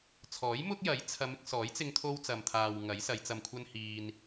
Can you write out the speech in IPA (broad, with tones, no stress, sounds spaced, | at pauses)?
t͡sʰ ɔː˨˥ j m ʊ˥ k̚ j ɐ˨˥ j t͡sʰ ɐ˨˧ m ɪ˧ k̚ s ɔː˨˥ j t͡s ɪ˧ ŋ t̪ʰ o˧ w t͡s ɐ˨ m t̪ʰ aː˨ w ŋ ɐ˨˥ j s ɐ˨˧ j t͡s ɐ˧ m kʷʰ ɐ˥ n h iː˧ n